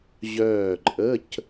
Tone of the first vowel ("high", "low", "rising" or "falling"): falling